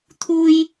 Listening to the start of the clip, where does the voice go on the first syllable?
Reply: high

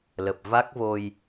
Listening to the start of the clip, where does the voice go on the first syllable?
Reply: low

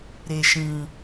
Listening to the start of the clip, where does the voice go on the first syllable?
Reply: low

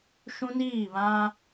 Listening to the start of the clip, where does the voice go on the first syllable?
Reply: high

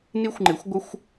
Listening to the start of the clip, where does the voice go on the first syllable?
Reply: high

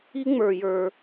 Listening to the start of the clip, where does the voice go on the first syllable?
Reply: high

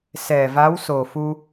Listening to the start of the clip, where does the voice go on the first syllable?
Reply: low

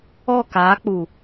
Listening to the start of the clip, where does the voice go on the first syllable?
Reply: falling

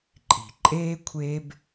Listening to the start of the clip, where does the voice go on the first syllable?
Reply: low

